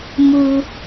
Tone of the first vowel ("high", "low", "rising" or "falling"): high